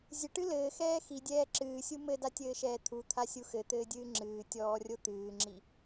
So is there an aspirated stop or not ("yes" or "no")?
yes